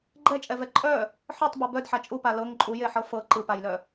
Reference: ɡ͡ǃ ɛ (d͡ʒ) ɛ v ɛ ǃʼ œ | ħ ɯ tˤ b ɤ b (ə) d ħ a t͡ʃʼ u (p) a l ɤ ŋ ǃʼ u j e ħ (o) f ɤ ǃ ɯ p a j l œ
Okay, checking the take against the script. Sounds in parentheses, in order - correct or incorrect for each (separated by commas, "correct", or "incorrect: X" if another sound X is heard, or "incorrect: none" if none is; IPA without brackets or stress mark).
incorrect: t͡ʃʼ, incorrect: œ, correct, incorrect: ɤ